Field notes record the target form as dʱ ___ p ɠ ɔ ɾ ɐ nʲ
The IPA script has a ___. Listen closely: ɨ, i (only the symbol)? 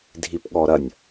i